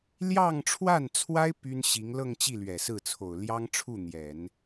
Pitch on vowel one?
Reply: falling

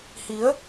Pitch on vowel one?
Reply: rising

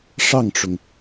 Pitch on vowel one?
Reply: falling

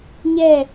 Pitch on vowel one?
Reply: falling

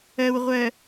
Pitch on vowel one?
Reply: low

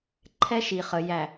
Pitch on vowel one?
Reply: high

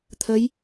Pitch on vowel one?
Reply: rising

